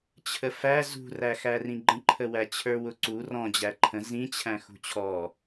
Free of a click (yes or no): no